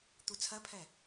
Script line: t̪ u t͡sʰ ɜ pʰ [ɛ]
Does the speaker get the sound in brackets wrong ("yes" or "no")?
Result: no